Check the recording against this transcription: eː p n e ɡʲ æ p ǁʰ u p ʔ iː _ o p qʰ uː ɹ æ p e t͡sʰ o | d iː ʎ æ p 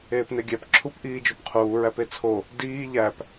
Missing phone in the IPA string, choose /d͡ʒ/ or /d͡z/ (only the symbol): d͡ʒ